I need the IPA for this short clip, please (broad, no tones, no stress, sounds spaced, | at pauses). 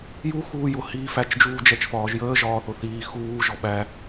j u x uː j ʊ h iː f æ t͡ʃ d͡ʒ uː d͡ʒ ɛ t͡ʃ f ɒː ʒ j əː ʒ ɒː θ ʊ θ iː x uː ʒ ɔ ɓ æ